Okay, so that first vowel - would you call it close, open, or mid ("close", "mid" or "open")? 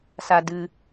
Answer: open